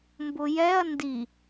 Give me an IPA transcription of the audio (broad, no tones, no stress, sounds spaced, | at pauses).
m b ʊ j ɛ ɐ̯ n d i